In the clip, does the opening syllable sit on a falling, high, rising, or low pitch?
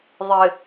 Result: low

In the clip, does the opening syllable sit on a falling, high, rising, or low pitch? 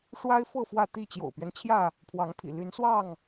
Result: high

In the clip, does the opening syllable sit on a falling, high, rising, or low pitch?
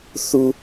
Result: high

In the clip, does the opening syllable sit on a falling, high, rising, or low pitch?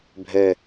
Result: low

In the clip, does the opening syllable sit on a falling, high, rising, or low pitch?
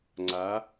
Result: rising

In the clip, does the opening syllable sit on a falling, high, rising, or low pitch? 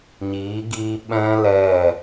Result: rising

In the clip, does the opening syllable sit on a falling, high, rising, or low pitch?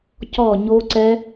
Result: falling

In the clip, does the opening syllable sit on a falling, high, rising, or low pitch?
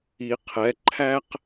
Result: low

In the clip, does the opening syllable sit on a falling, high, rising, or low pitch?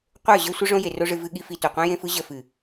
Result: falling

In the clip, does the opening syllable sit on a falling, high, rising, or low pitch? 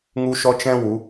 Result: high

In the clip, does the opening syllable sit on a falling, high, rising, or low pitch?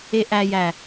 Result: low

